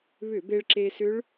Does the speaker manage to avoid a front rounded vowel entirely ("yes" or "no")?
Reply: no